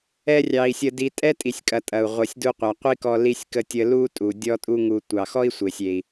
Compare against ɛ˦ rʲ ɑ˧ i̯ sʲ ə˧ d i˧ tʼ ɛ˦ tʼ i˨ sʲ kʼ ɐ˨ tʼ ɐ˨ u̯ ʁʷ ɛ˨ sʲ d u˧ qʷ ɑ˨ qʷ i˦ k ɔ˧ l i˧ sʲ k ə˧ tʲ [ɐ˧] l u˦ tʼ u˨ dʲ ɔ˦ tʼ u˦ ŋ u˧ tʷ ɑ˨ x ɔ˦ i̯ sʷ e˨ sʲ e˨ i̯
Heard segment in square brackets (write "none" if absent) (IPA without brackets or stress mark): ə˧